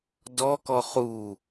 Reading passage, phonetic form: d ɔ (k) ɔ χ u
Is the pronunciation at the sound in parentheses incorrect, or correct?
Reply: correct